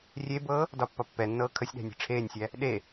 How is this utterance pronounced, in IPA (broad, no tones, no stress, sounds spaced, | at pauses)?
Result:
rʲ e b ɤː | d ɒ pː ɒ pː ɛ nː ɤː kʰ ə sʲ ɗ æ̤ nʲ e̤ ʈ͡ʂʰ eː nʲ sʲ æ | ɗ e